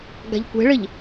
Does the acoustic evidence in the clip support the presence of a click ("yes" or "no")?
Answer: no